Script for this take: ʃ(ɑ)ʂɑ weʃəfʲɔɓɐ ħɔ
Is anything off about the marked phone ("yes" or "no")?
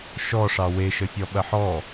yes